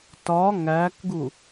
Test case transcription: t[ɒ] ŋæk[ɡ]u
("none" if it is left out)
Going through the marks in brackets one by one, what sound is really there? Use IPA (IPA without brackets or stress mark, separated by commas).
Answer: ɒ, ɡ